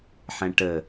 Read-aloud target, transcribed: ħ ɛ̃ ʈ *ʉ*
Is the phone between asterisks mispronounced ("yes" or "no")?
yes